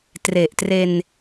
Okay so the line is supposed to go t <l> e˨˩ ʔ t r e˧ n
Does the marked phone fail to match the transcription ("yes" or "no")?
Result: yes